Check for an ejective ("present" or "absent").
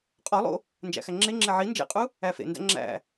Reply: present